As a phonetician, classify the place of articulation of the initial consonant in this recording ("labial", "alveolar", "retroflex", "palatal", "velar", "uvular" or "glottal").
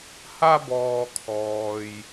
glottal